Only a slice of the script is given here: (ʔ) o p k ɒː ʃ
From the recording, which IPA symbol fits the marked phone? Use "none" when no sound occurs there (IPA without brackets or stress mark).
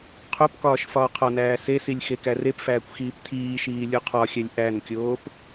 qʰ